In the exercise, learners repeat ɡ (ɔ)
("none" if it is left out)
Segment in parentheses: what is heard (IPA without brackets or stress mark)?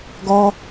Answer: ɔ